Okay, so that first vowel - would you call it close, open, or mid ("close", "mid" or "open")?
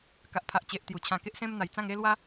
open